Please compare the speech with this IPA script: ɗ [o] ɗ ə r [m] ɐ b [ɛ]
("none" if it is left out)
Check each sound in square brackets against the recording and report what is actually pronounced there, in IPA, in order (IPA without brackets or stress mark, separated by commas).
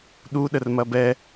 u, m, ɛ